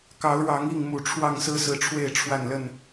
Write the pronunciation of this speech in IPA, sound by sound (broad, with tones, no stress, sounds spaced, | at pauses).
k ɑ˨˦ ʊ̯ ɻ ɑ˨˦ ŋ i˥˨ ŋ m u˨˩ ʈ͡ʂʰ w ɑ˥˨ ŋ s ɹ̩˦ s ɹ̩˨˦ ʈ͡ʂʰ w e˥˨ ɪ̯ ʈ͡ʂʰ w a˥˨ n l ə˥˨ n